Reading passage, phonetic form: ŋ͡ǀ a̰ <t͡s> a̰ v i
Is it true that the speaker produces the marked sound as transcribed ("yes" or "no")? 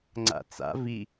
yes